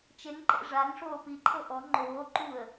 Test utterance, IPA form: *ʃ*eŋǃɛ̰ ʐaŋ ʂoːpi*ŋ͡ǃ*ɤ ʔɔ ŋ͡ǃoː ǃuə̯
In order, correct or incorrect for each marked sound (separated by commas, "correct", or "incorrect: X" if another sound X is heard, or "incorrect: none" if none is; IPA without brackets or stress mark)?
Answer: incorrect: t͡ʃ, incorrect: ǃʰ